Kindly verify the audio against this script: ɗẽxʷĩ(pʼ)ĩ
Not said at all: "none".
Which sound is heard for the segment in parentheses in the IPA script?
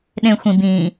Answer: b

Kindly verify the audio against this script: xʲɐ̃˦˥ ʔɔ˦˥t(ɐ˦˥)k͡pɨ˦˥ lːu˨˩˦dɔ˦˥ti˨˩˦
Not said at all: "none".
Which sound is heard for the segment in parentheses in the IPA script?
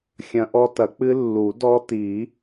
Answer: ɐ˨˩˦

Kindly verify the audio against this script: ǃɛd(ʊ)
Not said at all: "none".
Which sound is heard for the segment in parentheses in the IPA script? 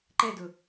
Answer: ʊ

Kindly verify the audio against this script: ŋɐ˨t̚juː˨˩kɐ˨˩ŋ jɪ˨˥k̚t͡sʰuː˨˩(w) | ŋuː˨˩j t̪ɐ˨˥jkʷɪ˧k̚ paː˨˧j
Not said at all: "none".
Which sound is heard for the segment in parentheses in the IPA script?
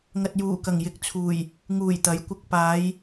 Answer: j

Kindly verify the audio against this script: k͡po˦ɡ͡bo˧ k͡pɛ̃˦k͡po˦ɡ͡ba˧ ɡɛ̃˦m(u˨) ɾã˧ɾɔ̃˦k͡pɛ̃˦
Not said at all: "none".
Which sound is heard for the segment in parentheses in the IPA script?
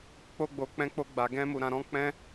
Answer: u˧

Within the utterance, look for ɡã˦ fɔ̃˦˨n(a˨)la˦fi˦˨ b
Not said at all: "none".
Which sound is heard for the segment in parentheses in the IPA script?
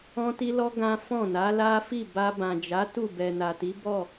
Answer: a˨˦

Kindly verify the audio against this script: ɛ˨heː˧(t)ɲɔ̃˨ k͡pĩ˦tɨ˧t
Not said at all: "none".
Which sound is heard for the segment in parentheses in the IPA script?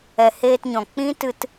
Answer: t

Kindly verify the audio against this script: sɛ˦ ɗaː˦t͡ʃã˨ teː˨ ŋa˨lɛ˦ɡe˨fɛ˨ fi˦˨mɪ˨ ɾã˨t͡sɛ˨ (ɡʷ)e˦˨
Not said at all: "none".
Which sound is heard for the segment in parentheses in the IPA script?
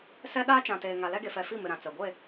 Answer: ɡʷ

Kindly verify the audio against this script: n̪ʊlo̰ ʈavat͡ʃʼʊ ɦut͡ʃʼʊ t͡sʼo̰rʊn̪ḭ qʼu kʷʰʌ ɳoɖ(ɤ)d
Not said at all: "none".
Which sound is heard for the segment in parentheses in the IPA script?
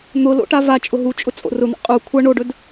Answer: ɵ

